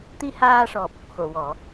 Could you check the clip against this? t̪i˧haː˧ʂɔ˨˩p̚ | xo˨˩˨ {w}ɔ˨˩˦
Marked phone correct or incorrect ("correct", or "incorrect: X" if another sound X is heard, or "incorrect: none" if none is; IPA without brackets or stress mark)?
correct